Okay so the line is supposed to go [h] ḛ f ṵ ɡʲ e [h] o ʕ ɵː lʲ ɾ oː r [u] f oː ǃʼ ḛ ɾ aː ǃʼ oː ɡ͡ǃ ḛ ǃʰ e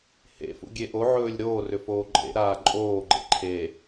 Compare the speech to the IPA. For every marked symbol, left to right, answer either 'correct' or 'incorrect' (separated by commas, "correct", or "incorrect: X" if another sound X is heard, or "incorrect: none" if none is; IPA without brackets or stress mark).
correct, incorrect: ʔ, incorrect: ʏ